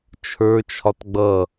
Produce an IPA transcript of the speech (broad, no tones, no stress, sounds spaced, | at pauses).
t͡ʃʰ ə˞ t͡ʃʰ ɒ t ɡ͡b ʌ